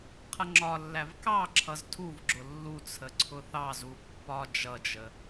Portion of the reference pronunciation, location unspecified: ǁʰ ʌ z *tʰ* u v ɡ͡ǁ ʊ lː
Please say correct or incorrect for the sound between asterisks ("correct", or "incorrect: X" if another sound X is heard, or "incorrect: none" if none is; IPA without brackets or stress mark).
correct